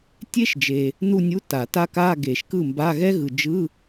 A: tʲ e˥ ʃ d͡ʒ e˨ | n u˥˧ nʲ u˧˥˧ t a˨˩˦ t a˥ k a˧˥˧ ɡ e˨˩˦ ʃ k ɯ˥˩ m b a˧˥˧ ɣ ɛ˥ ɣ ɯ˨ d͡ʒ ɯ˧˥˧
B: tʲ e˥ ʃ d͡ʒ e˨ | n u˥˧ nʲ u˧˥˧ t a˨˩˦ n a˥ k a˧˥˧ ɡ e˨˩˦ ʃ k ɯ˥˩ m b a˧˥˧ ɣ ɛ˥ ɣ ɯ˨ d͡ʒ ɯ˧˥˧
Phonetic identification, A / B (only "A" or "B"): A